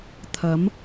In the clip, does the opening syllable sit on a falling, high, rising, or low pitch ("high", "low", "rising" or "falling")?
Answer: rising